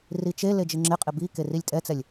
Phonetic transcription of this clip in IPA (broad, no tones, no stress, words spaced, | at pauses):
rit͡ʃe led͡ʒɪŋ͡ǁɪqʼɪ bi kerilʲtʼɛt͡sɛlʲ